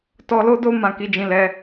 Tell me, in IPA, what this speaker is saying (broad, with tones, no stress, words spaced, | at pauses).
tɔ˧lo˦do˦ mã˦˨ki˧d͡ʒĩ˧lɛ˧